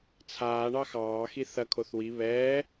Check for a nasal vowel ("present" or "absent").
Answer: absent